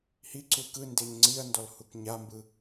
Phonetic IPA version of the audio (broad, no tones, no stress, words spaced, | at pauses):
hiǀu kɯ ndeɲŋ͡ǀiɐ̯ndɔl hukɲambɯ